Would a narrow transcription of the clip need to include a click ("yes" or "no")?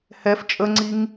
yes